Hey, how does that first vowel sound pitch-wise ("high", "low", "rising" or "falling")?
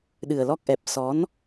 low